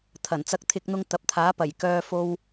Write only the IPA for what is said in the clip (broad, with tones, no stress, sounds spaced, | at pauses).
t̪ʰ ɐ˨˩ n t͡s ɐ˧ k̚ t̪ʰ ɪ˧ k̚ n̪ ʊ˧ ŋ t̪ ɐ˨ p̚ t̪ʰ aː˨˥ p ɐ˨˩ j k œː˧ f o˧ w